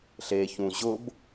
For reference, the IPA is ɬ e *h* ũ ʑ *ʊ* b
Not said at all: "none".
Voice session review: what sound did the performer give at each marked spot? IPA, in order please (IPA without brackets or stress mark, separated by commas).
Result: ç, ʊ